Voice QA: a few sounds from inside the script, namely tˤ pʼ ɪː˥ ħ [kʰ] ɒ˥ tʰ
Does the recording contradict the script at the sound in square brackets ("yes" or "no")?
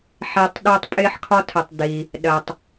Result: no